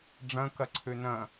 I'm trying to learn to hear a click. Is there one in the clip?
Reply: yes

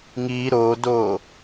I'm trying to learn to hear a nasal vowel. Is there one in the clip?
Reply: no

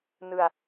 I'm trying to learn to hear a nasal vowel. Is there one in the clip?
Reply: no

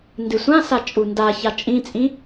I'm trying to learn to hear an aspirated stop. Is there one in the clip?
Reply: no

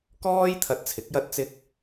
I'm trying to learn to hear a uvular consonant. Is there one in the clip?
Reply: no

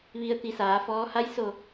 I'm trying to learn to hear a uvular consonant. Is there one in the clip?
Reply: no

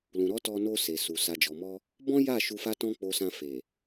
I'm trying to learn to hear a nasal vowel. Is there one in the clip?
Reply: yes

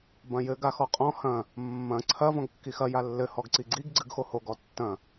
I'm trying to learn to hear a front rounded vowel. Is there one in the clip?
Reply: no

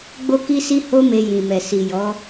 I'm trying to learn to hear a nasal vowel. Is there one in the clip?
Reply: yes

